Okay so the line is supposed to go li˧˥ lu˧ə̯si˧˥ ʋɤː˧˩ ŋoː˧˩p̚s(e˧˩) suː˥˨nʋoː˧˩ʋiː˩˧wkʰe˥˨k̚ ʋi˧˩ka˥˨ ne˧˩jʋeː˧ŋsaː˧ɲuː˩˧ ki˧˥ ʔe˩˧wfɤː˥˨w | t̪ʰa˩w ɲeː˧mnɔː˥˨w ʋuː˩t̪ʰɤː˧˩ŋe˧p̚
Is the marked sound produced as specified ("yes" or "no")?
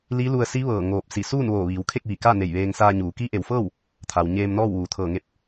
no